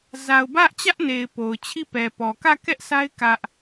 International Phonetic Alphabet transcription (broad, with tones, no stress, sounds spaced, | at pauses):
z a˨ ʊ̯ b ä˦ ʔ t͡ɕ ä˦ ʔ n e˨ ɪ̯ p o˨ ʊ̯ t͡ɕʰ i˦˨ p ɛ˨ p ɔ˨ k ä˦˨ k ɛ˦ ʔ sʰ a˦ ɪ̯ k ä˦ ʔ